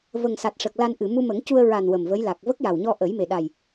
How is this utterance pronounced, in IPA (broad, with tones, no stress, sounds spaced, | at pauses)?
v ə˨˩ ŋ s a˨˩ t̚ ʂ ə˨˩ k̚ l a˧ n ʔ ɨ˨˩˨ m u˧ m ə˨˩˦ ŋ c u˧ ə̯ ɹ a˨˩ n w ə˨˩ m v ə˧˥ j l a˨˩ k̚ v ə˦˥ k̚ j a˨˩ w ɲ ɔ˧ ʔ ə˨˩˦ j m e˨˩ ɗ a˨˩ j